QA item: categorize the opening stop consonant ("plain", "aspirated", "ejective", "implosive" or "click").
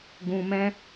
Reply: plain